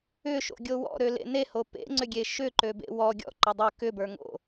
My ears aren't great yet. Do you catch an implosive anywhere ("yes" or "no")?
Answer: no